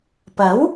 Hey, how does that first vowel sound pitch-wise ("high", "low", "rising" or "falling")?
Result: rising